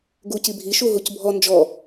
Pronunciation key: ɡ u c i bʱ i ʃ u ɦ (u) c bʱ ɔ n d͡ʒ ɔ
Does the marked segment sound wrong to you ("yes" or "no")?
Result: no